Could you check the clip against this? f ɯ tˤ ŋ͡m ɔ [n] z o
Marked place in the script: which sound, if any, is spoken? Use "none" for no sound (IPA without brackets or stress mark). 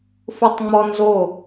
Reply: n